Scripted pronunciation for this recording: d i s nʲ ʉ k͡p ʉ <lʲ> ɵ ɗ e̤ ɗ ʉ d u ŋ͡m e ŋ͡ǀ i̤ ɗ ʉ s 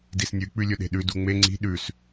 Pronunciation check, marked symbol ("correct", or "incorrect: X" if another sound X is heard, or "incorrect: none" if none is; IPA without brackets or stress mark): correct